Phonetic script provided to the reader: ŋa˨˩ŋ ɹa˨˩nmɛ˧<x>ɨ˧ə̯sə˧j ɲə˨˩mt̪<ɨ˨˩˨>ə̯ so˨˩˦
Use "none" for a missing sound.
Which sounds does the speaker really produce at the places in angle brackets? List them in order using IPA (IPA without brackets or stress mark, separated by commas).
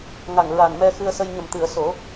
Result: x, ɨ˨˩˨